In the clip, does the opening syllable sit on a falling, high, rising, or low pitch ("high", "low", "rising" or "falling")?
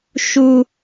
high